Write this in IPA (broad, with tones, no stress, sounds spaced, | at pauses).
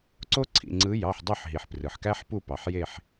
ǀ o˦ ǀʰ ḭ˩˧˩ ŋ͡ǀ ɯ˨˦ j ɑ˩˧˩ ħ dˤ ø˦˨ ħ ɦ i˩ ħ p r ɯ˩ ħ k æ˦ ħ p u˦˨ p ɑ˩ ħ j e˦˨ ħ